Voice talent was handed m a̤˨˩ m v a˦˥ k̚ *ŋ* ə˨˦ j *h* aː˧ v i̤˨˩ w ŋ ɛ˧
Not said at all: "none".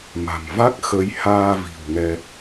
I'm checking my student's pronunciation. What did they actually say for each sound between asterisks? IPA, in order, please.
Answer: x, h

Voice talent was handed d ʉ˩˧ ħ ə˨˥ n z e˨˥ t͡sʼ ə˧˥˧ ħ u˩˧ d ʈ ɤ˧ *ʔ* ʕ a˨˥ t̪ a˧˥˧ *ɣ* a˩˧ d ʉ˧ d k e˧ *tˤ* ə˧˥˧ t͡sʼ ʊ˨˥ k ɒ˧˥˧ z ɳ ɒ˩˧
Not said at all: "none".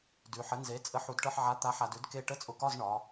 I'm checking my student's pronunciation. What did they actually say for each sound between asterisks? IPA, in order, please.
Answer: ħ, ħ, ʈ

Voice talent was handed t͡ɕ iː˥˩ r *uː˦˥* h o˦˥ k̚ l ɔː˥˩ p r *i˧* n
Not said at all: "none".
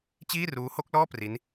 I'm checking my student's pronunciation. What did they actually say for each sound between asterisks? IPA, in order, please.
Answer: uː˦˥, i˦˥

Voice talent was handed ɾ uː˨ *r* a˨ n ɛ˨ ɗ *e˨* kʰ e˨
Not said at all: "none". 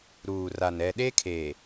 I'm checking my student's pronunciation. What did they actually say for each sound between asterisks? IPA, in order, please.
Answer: r, e˦

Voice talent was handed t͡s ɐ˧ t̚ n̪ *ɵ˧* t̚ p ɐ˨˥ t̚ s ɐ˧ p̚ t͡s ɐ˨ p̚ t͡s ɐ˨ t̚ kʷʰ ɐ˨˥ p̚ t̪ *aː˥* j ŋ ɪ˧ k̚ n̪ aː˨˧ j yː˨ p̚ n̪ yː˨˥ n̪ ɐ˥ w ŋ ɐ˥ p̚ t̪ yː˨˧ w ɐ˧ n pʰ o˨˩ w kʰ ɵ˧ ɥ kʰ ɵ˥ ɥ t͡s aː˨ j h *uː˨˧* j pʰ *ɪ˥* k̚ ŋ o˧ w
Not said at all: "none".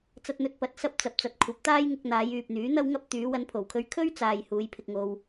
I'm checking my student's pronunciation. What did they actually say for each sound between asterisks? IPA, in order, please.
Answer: ɵ˧, aː˥, uː˨˧, ɪ˧

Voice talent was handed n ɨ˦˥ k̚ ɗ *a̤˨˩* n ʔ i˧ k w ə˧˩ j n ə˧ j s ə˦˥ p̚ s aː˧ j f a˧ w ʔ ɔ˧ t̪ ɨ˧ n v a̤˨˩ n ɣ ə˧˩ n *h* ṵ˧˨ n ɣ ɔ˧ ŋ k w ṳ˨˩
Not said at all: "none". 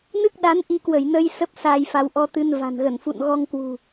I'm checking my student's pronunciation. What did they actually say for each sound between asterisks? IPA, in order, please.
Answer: a˨˦, f

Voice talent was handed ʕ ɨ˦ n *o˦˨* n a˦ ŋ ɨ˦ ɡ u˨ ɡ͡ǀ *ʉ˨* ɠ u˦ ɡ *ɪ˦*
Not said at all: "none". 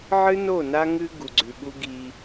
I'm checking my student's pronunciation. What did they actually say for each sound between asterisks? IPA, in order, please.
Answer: o˦˨, ʉ˨, i˦

